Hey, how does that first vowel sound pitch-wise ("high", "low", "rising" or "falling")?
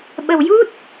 low